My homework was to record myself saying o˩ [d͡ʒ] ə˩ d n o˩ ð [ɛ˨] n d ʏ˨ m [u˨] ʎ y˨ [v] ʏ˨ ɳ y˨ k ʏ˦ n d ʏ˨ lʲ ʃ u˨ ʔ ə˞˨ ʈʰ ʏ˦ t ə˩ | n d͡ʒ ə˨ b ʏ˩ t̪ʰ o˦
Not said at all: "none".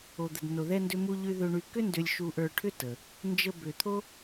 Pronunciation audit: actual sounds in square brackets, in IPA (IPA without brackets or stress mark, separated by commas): d̪, ɛ˨, u˨, ð